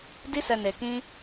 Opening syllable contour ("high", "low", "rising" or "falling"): high